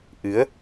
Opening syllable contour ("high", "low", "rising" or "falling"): rising